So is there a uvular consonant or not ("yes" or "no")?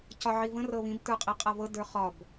yes